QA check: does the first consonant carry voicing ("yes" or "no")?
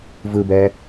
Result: yes